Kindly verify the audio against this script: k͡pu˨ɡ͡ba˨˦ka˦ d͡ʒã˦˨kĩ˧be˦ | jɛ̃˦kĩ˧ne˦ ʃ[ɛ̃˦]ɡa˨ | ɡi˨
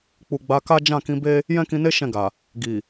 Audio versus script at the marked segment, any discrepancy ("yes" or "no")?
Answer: yes